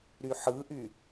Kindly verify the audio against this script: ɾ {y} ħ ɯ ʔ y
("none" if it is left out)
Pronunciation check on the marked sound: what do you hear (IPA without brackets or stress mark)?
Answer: y